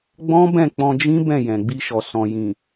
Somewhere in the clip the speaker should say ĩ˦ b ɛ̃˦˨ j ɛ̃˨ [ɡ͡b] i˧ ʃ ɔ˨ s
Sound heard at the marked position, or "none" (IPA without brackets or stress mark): ɡ͡b